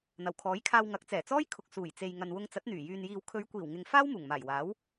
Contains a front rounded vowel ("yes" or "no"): yes